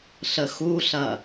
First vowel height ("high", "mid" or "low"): mid